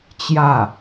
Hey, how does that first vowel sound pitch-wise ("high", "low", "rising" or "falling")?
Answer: falling